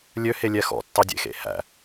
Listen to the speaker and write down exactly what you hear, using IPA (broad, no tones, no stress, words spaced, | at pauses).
lʲøhelʲɛ xɔ̰tːɑdʲḛxḛ hæ̰